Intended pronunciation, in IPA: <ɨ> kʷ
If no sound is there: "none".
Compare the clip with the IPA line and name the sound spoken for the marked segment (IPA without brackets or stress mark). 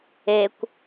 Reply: e